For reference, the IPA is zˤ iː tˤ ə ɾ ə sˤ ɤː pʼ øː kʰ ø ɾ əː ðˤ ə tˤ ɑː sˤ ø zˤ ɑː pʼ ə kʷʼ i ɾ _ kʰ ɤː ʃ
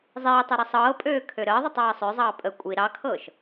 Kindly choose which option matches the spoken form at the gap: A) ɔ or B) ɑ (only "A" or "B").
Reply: B